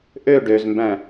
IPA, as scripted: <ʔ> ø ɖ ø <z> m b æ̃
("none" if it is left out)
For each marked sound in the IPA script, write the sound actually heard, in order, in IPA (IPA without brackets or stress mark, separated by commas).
ʔ, z